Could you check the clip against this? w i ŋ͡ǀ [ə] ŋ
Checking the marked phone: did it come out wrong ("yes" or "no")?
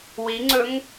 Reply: yes